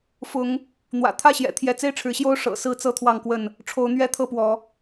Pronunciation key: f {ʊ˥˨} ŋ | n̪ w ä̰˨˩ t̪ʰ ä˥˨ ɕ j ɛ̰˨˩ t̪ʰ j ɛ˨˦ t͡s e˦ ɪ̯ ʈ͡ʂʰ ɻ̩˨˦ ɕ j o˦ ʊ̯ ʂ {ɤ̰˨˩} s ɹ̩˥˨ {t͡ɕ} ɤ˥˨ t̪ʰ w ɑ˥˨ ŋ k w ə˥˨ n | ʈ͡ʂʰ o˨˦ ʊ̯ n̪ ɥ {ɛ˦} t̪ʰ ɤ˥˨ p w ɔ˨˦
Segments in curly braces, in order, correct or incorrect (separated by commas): incorrect, correct, incorrect, correct